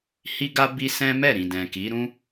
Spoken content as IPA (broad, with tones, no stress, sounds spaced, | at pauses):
h i˦ ɡ a˦ b i˦ s ɛ̃˦ m ɛ˦˨ ɾ ĩ˨ d ɛ̃˨ k i˨˦ ɾ ũ˦